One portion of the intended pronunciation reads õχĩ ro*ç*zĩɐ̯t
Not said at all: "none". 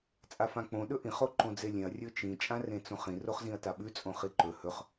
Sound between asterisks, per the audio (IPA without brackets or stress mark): χ